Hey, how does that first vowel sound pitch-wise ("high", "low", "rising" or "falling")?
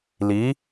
rising